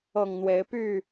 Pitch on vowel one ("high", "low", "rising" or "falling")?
low